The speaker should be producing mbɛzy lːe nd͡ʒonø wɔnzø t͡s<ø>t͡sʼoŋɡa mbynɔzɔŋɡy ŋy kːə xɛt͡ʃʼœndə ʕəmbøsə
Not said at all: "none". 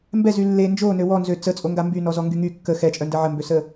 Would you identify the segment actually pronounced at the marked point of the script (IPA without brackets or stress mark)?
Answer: ə